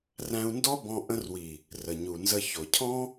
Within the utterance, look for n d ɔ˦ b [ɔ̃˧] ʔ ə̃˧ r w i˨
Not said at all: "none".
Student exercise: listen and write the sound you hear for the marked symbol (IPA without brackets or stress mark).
ɔ̃˧